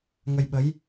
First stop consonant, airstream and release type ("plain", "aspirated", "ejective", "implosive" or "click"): implosive